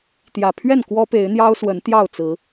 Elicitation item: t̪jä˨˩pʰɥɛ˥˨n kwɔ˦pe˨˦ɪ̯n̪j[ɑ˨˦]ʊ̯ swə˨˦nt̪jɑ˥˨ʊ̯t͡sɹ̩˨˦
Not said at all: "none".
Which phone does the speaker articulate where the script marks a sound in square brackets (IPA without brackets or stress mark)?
ɑ˦